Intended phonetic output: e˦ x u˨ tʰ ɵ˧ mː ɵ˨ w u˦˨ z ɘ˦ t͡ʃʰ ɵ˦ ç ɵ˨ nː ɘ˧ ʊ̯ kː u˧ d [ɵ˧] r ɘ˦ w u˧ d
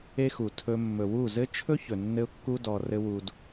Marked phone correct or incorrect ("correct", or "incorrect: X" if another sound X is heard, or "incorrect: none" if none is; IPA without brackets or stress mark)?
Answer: incorrect: ɔ˧